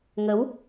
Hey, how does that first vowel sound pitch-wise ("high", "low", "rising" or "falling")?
rising